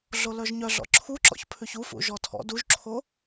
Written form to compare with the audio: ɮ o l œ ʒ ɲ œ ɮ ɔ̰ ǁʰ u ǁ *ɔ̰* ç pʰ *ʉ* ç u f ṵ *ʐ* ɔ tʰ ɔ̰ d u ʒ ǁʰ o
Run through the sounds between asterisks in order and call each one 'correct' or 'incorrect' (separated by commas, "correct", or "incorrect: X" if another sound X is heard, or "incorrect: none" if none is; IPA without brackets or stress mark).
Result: correct, correct, incorrect: ʒ